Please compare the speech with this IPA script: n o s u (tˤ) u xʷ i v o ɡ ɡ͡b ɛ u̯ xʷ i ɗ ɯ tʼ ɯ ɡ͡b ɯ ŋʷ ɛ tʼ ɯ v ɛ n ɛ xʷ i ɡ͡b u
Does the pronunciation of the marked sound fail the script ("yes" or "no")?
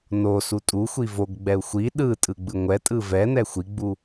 yes